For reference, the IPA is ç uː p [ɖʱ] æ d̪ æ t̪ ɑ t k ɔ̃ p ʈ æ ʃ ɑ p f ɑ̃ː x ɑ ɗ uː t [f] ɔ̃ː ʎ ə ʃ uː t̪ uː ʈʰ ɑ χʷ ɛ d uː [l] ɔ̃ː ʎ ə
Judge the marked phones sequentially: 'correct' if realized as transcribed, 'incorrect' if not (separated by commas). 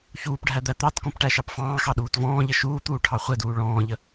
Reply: correct, incorrect, incorrect